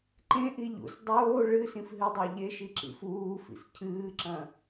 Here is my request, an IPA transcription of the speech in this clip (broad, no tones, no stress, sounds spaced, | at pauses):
ǃ ẽ ʔ i ʎ ṵ s dˤ oː ɭ ɨ s ĩ f ɦ ɨ dˤ a ʎ e ʃ i ǁ ḭ f uː f ḭ s cʰ ɨː ǁ ɐ̃